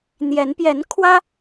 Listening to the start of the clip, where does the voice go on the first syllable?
rising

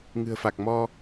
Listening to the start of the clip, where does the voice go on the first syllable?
low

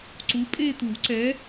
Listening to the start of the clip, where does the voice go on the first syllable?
rising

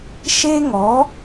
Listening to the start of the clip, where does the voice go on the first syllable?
high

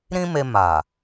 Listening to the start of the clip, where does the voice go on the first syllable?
high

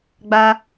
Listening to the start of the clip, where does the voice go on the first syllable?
high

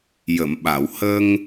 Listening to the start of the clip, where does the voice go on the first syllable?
low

